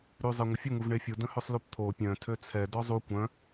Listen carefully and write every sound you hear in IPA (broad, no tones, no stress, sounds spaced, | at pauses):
ɾ y zˤ e ŋʷ ə fʲ ə ŋ u v ɳ e fʲ u d ə̃ h ø sˤ l u p t̪ʰ o pʲ œ̃ tʰ ø t͡sʰ ɛ d ɔ zˤ u kʷ œ̃